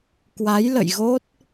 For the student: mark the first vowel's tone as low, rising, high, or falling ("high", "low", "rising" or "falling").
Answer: rising